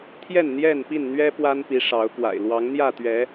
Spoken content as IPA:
t̪ʰ j ɛ˥˨ n n̪ j ɛ˥˨ n p i˥˨ n n̪ ɥ ɛ˦ p w a˦ n p i˨˦ ʂ ɑ˨˦ ʊ̯ k w a̰˨˩ ɪ̯ l w ɑ˨˦ ŋ n̪ j ä˥˨ t̪ ɥ ɛ˨˦

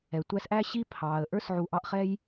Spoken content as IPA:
ɛ˩ tʷ æ˦ s ʔ æ˥ ɕ i˥ pʰ ɑː˩ ə̯ ʔ ə˞˥ s ʕ u˨ ʔ ɑ˦ ʔ χ ɛ˥ j

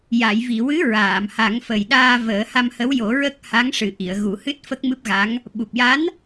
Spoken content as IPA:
j a˨˩˨ j v i˨˩˨ w ɨ˧˥ ɹ aː˨˩˨ m h a˨˩˦ ŋ f ə˨˩ j ɗ aː˧ v əː˨˩˦ h a˧ m h ə˧˥ w j o˨˩˦ ɹ ə˦˥ k̚ h a˧˥ ŋ ʂ ɨ˨˩ ʔ i˨˩˨ ə̯ ɣ u˨˩˦ h ɨ˦˥ t̚ f ə˦˥ k̚ m ɨ˦˥ p̚ ɣ a˧˥ ŋ | ɓ u˨˩ p̚ j a˧˥ n

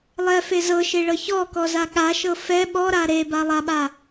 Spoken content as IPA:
lˠ ɛ f e z ɤ ʃ e ɭ ɤ ç ɔ k ɔ z a ɠ a ʃ ɤ f ɛ ɓ ɔ ɾ a ɾ e b a lˠ a ɓ a

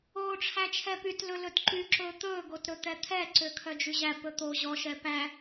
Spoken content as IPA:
oː ʈ͡ʂʰ æ t͡ʃʰ ɛ p y t l ɵ l ɵ t ǃ y ǁ ɵː t̪ ɵː ɡ o t ɾ ɵ t̪ ɛ t̪ʰ ɛ ǀ ø kʰ œ d͡ʒ y ʑ æ p ɵ t̪ o ʑ ɔ ʃ ɛ p æ

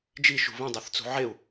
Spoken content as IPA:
d͡ʒ i ʃ ṳ β ẽ dˤ ø θ t͡s ṳ ʕ e u̯

